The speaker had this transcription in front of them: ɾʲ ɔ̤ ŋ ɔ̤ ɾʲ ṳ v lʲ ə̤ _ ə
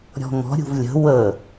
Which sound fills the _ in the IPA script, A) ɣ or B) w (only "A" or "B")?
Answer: B